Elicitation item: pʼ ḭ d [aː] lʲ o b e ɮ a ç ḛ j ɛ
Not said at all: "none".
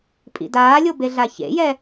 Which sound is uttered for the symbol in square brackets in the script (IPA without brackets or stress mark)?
aː